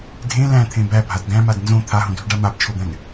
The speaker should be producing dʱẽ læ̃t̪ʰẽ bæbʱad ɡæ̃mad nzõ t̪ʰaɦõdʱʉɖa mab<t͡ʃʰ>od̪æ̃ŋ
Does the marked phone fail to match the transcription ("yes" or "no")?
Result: no